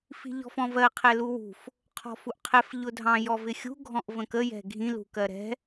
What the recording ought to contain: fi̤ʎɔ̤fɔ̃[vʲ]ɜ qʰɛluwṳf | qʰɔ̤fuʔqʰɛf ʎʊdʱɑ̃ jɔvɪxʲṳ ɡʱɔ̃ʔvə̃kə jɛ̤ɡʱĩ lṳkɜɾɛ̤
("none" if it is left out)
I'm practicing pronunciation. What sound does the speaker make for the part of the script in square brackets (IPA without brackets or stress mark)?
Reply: v